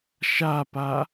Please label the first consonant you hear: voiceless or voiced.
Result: voiceless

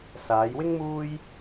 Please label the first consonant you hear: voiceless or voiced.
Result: voiceless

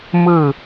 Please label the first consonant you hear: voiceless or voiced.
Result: voiced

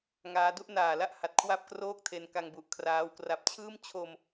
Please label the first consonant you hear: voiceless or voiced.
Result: voiced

